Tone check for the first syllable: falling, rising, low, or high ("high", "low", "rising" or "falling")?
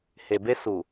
low